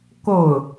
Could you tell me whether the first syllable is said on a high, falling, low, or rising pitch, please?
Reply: falling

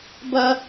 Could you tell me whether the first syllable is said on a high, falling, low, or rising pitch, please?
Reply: high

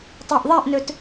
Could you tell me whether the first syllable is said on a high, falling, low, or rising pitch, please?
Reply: low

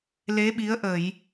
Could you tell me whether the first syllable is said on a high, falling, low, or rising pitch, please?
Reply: rising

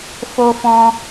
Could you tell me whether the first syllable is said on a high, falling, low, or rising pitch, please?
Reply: high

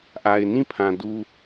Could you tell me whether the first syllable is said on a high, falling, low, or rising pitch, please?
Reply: low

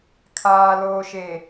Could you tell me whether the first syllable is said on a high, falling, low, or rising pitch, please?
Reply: low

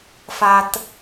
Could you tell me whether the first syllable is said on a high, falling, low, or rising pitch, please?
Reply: low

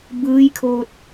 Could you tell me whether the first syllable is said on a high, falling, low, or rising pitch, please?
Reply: rising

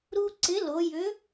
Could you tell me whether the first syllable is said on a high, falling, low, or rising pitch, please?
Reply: high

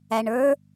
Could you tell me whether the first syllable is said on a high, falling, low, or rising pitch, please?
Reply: low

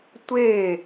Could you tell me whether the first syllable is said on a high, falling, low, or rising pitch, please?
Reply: falling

